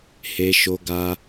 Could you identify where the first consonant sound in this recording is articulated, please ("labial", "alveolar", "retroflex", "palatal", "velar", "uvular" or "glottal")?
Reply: glottal